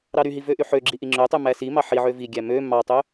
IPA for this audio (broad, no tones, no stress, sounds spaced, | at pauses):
ɾ ɑ ɾ y ɦ i v ø ʔ y ħ ø ɡ͡ǁ i ʔ i ŋ͡ǁ ø tˤ y m æ s i m ɑ ħ i ʕ ø v i ɡʲ æ m ø m ɑ tˤ ø